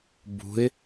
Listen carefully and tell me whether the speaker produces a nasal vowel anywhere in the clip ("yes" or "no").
no